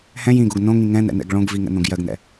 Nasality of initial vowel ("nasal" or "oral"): nasal